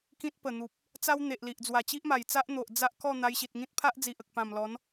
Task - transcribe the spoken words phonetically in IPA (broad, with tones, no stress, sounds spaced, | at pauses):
k ĩ˦ t̚ p ə˨˩ n̪ u˨ p̚ | t͡s a˦ w n̪ e˨ ʔ l i˨ ʔ d͡z w a˨˩ t͡ɕ i˦ ʔ m a˨˩ j t͡s a˦ ʔ n̪ o˨ ʔ d͡z a˦ ʔ k ɔ˥˧ n̪ a˧ j ɕ i˨ t̚ ŋ ĩ˦ t̚ pʰ a˦ ʔ d͡z i˨ ʔ ə˨ k̚ p ã˨˩ m l ɔ˨˦ n